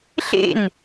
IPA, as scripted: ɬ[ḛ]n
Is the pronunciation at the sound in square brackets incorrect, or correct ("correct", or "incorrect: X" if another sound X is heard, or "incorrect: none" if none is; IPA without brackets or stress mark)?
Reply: correct